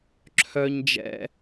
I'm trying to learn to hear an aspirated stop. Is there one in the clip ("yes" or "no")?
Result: yes